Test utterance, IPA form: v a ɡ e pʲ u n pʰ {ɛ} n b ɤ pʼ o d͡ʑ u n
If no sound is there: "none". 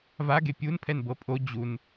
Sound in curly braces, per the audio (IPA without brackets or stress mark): ɛ